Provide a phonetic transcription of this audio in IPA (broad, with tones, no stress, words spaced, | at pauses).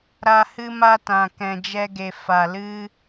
ɾa˧hɨ˦ma˦tã˨ kɛ̃˨d͡ʒɛ˧ɡe˨ fa˨lɨ˦